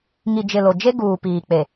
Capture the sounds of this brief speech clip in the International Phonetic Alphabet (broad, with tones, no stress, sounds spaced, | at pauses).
ŋ i˨ d͡ʒ ɪ˨ l o˨ d͡ʒ e˦ ɡ uː˨ p iː˨ k͡p e˨